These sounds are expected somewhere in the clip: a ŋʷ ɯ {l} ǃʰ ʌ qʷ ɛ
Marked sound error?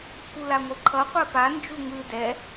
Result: yes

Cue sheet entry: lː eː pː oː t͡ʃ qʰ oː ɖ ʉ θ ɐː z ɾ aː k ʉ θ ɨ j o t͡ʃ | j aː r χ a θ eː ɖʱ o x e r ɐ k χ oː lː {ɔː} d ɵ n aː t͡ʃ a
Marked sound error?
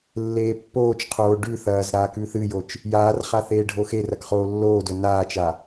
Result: yes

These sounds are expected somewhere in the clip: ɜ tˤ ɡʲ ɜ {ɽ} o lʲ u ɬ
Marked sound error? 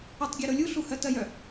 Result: yes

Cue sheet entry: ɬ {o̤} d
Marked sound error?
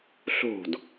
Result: no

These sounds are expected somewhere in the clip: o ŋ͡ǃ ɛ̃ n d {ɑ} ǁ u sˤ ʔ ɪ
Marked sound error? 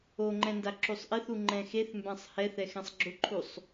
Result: yes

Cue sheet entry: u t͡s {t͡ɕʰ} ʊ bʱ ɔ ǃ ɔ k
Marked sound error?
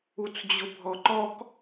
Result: yes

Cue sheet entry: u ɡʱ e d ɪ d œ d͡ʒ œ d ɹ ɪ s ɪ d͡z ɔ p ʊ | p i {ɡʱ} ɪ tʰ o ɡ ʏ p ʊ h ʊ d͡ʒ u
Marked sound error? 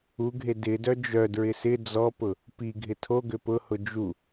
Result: no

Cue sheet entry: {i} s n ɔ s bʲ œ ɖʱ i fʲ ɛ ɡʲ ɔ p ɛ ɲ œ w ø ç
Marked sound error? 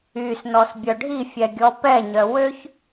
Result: yes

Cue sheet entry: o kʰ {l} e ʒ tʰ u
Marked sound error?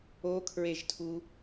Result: yes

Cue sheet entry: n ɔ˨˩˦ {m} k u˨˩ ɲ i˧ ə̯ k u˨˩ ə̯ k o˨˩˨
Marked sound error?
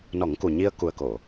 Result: yes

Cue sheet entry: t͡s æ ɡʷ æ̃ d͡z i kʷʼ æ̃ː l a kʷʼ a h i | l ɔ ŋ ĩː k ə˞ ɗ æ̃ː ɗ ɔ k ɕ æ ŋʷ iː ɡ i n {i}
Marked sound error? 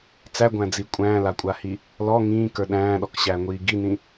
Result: yes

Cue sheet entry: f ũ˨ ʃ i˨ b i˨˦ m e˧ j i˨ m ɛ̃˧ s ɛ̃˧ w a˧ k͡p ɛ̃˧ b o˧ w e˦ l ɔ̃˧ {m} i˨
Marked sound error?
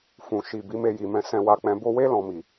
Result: no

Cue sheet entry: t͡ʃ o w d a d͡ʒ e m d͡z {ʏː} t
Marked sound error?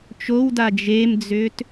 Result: no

